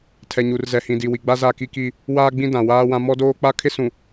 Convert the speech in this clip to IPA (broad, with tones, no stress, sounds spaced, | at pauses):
tʰ ɛ˨ ɲ u˨ r z ɛ˨ h ĩ˨ d i˨ w i˨ ɡ͡b a˦ z a˦˨ k i˦ k i˦ | w aː˦ ɡ͡b ĩ˦ d ã˨ w aː˦ w ã˦ m ɔ˦ d oː˦ k͡p a˦ kʰ ɪ˦ s ũ˨